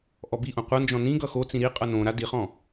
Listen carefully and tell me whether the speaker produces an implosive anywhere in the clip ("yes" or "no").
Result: no